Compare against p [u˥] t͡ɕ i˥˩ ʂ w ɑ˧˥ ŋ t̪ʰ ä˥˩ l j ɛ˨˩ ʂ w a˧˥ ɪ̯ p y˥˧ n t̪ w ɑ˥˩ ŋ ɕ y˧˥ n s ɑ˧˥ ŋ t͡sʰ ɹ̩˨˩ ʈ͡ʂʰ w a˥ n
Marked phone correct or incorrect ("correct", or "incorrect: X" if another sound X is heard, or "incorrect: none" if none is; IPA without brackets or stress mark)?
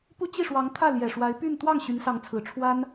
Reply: correct